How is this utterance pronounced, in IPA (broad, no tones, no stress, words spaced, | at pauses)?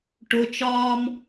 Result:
ʈʊt͡ʃɒːm